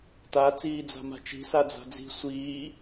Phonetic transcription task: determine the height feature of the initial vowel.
low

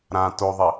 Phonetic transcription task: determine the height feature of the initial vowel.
low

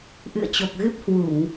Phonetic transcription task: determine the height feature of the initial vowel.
high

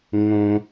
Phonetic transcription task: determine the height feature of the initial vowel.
mid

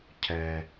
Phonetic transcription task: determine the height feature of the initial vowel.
mid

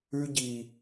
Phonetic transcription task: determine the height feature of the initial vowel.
high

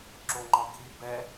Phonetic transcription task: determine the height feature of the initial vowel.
mid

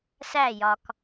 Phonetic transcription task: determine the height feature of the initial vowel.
low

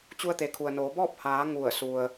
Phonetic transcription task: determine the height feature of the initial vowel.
high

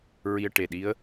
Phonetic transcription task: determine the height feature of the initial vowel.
high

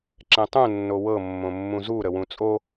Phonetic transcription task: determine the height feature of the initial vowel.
mid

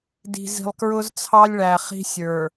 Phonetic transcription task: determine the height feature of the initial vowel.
high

